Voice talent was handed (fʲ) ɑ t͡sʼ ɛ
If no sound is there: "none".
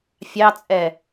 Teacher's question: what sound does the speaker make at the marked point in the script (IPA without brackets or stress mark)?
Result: fʲ